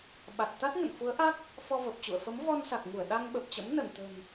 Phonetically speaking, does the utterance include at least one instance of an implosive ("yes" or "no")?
yes